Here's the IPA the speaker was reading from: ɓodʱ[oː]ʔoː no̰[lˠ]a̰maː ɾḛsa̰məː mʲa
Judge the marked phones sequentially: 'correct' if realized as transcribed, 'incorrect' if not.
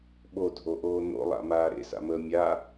incorrect: o, correct

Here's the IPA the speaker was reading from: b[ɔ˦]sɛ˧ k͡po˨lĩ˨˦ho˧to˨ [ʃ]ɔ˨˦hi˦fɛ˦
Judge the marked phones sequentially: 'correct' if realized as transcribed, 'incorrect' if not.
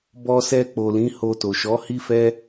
incorrect: ɔ˧, correct

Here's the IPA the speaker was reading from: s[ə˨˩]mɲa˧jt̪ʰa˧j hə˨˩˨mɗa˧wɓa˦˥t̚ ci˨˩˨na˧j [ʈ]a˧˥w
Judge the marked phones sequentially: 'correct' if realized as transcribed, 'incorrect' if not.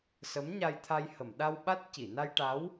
incorrect: ə˧˥, correct

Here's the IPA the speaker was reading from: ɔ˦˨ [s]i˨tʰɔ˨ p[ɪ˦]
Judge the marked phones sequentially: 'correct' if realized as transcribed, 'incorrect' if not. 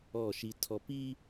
incorrect: ʃ, incorrect: i˦

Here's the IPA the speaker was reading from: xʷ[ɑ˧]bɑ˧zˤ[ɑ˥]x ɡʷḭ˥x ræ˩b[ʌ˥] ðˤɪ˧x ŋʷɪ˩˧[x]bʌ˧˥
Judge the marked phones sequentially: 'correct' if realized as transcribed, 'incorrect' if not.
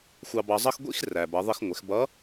correct, incorrect: ʌ˥, incorrect: ʌ˩˧, correct

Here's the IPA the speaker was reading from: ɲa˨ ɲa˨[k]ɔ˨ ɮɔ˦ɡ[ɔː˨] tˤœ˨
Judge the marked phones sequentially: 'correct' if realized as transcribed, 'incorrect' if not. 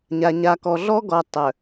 correct, incorrect: ɔ˨

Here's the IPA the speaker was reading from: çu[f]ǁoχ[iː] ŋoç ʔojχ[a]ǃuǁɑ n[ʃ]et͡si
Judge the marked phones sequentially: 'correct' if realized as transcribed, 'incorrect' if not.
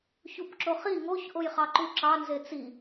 incorrect: p, incorrect: i, incorrect: ɑ, incorrect: z

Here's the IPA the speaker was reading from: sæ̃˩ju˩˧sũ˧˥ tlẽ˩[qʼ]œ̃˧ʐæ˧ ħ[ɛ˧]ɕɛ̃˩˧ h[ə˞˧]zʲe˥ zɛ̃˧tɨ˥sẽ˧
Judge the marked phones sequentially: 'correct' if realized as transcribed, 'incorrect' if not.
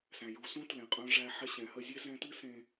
correct, correct, incorrect: ə˧

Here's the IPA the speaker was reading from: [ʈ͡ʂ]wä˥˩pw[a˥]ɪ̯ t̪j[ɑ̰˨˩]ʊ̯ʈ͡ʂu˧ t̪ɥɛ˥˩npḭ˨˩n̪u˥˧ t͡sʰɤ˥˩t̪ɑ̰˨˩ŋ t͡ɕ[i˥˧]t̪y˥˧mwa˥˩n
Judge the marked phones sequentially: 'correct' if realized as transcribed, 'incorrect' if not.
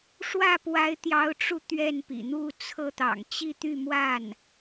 incorrect: ʂ, incorrect: a˧˥, incorrect: ɑ˧˥, correct

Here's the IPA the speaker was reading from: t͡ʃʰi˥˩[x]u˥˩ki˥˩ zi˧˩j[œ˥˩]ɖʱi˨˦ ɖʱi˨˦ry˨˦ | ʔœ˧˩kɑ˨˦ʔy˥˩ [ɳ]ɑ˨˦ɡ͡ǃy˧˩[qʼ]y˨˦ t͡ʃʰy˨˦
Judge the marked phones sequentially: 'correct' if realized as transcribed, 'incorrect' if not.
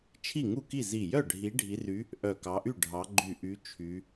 incorrect: ŋ, correct, incorrect: ɖʱ, incorrect: ʔ

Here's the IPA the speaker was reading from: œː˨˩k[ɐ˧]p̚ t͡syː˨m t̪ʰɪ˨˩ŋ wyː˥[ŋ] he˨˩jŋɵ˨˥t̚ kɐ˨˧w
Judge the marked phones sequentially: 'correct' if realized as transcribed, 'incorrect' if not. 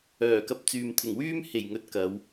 correct, incorrect: m

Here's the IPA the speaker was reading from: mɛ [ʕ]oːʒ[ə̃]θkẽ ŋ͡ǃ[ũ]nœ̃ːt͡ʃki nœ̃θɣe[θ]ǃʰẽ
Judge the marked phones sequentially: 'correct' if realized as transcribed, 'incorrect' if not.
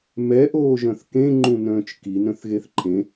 incorrect: ʔ, incorrect: œ̃, correct, correct

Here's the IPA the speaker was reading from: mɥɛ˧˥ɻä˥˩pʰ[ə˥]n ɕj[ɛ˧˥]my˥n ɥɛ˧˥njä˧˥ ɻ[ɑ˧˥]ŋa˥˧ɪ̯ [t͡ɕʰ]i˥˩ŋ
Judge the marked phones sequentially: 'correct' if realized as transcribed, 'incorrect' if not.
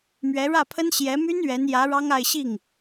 correct, correct, incorrect: ɑ˥, incorrect: ɕ

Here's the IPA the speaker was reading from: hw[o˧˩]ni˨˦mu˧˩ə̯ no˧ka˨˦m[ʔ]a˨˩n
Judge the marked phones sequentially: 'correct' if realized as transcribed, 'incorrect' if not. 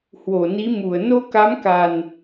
correct, incorrect: k

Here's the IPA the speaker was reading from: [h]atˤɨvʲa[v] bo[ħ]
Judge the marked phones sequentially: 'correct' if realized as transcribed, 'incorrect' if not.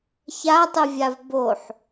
incorrect: ç, correct, correct

